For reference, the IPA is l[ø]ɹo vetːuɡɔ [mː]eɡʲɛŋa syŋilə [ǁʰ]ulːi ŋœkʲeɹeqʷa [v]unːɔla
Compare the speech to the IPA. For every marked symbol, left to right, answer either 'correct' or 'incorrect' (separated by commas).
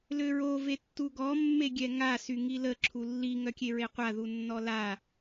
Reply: correct, correct, correct, incorrect